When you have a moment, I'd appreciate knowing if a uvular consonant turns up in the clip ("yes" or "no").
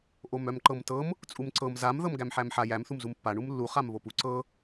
yes